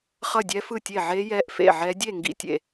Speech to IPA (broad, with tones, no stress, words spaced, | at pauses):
χʌ˥˨dʲɛ˦˥fɯ˥˨tʲe˥˨ ʕe˦˥ jɛ˦˥ʔfḛ˥˨ʕɛ˦˥ dʲe˥˨ ŋɡḭ˥˨tʲḛ˥˨